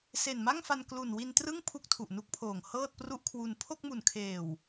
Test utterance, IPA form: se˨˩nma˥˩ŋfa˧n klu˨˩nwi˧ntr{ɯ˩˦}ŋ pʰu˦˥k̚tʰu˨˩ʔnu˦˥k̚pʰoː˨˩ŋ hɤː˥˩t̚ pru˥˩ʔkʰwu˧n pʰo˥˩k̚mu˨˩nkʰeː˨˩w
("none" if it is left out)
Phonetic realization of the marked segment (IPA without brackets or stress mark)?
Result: ɯ˥˩